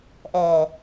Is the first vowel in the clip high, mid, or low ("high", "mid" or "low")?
mid